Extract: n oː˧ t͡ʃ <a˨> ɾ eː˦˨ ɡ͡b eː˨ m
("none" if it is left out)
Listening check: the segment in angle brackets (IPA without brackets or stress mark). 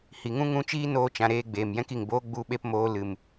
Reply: ã˨